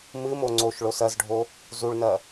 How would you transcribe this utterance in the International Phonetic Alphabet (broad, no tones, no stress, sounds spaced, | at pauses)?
m ɨ m o ŋ͡ǀ o ʃ ɭ o s ɐ z ɖʱ o | z u ɭ n ɐ